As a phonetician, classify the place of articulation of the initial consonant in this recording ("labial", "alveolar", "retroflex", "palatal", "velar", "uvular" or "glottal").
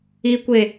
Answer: velar